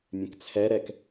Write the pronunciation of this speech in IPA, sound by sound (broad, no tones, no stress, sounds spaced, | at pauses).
mʲ ɛ̃ k t͡sʰ ɛ ɾ ɛ k